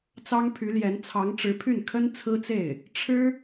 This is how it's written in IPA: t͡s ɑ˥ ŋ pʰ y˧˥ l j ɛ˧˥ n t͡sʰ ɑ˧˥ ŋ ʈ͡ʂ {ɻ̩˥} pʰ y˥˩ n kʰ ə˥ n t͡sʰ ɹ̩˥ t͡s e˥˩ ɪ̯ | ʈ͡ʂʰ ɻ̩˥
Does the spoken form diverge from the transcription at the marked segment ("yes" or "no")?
yes